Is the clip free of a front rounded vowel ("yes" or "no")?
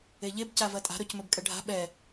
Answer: yes